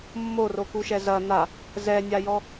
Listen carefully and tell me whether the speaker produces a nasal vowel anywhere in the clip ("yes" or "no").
no